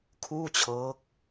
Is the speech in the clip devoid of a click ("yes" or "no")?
yes